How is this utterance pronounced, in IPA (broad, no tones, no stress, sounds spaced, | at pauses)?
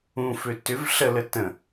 ũ f ø t ʏ v ɬ ə l ə t ə̃